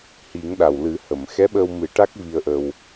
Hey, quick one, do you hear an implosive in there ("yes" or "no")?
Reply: yes